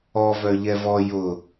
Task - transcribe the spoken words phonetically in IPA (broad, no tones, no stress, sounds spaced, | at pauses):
ɔ v œ ʎ ɛ v ɔ j ʊ